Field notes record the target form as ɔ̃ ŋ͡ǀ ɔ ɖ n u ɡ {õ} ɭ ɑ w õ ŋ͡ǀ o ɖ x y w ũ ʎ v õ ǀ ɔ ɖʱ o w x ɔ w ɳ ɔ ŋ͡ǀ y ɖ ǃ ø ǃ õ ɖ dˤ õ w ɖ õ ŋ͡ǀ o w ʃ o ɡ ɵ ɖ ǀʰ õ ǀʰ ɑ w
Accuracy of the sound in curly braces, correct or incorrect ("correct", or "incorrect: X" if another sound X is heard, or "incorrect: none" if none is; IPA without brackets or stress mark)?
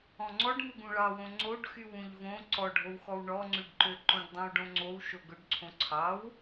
incorrect: ũ